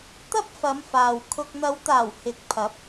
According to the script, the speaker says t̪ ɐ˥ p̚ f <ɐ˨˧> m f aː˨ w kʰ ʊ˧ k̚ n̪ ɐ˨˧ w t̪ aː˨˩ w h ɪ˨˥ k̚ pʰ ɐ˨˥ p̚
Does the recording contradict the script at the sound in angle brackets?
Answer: no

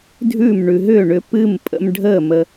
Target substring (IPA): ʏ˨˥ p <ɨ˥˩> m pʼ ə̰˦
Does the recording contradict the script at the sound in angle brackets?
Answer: no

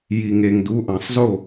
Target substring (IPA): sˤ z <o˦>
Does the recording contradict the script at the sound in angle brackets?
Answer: yes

